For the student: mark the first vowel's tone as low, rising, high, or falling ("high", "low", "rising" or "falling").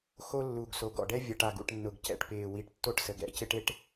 high